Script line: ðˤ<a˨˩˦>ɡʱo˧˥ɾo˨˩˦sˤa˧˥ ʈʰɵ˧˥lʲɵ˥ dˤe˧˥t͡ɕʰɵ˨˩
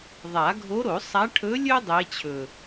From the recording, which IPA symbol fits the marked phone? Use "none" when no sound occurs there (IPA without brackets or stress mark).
a˨˩˦